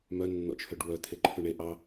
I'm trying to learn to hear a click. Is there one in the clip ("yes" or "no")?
yes